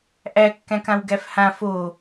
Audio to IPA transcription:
ʔ æ kː æ̃ k ã w ɡ æ f h ã f o

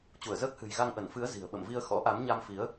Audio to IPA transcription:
t͡ɕ u˧˩ ə̯ z əː˦˥ k̚ h ɨ̤˨˩ j ɣ a˧ ŋ ʔ ə˧˩ n f ɨ˨˦ ə̯ z i̤˨˩ ə̯ ɓ ə̰˧˨ m v i˧ ə̯ x ɔ̰˧˥ ʔ a˨˦ m ɲ a˧ m f i˨˦ ə̯

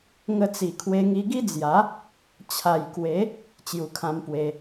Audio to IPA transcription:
ŋ ə˧ t͡s i˨˩ kʰ w e˧ ŋ i˧ ɡ i˦ d͡z j a˨˦ | t͡ɕʰ a˨˩ j k w e˨˦ | t͡ɕ j u˨˩ kʰ ã˧ m p w e˧

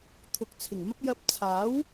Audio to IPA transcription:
t̪ʰ ʊ˨˥ k̚ t͡sʰ ɪ˨˩ ŋ m ɐ˥ p̚ j ɐ˧ p̚ t͡sʰ aː˨˥ w

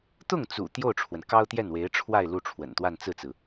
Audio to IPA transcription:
t̪ ʊ˥˩ ŋ t͡s ṵ˨˩ t̪ j o˥˩ ʊ̯ ʈ͡ʂʰ w ə˩ n k ɑ˥ ʊ̯ t̪ j ɛ˥˩ n w e˧˥ ɪ̯ ʈ͡ʂʰ w a˥˧ ɪ̯ l u˥˩ ʈ͡ʂʰ w ə̰˨˩ n t̪ w a˥˧ n t͡s ɹ̩˥˩ t͡s ɹ̩˩

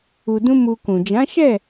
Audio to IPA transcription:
u˧ d ũ˦ m u˧ k ũ˨ d͡ʒ ã˨˦ ʃ ɛ˦˨

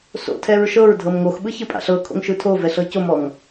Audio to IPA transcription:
s o̰ tʰ ɛ ɹ ʃ ɤ ɹ dʱ ɤ m ŋ o x ɓ ɯ ç ɯ pʼ a̰ ɬ ɤ kʰ o̰ ŋ ʃ ɯ tʰ o v ɛ ɬ ɤ c o m ɔ ŋ

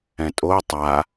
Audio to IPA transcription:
ɛ̃ tʼ o tˤ a

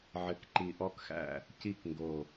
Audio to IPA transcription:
ʕ ɘ˨˥ k ǃ i˧˩ ʔ ɔ˥˨ k x æ̰˥˨ | c i˥˨ k ŋ ɡ o˧˩

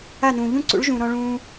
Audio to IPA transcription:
a˦˨ n ũː˨ ʎ ũ˦˨ ǀ ṵ˨˦ ɭ ʒ ũ˨ ɾ ɔ̃˧ ɭ ũː˧

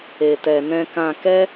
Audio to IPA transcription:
e˨ t ɛ˨ n ɛ̃˧ k ã˧ k ɛ˦

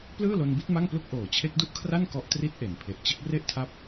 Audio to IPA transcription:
p l ɯː˥˩ l o˧ n b i˦˥ t̚ m a˥˩ ŋ p l u˥˩ k̚ ʔ oː˨˩ t͡ɕʰ e˦˥ k̚ d u˥˩ ʔ kʰ r a˥˩ n k ɔ˦˥ ʔ t r i˦˥ t̚ ʔ e˩˦ n pʰ e˨˩ ʔ t͡ɕ ɯ˦˥ k̚ r e˥˩ ʔ tʰ a˦˥ p̚

